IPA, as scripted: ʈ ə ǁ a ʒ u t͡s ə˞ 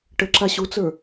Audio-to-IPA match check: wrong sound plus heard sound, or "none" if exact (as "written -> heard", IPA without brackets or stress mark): ʒ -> ɕ